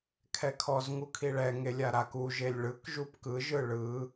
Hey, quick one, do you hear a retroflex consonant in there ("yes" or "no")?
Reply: yes